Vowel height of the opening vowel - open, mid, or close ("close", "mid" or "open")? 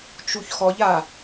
close